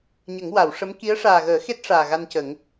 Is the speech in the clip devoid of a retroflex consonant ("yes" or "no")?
no